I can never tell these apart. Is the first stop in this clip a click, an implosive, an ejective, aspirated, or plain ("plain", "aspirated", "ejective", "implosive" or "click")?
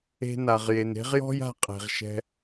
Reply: ejective